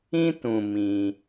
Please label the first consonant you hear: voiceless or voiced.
voiceless